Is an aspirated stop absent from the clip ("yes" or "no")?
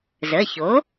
yes